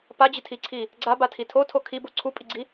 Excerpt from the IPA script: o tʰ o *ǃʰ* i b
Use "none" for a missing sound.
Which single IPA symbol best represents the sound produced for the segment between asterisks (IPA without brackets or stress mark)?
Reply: kʰ